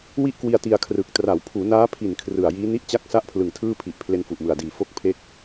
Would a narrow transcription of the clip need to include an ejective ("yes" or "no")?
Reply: no